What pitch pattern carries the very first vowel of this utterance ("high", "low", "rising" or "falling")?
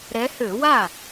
rising